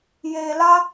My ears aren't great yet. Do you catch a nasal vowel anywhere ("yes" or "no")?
no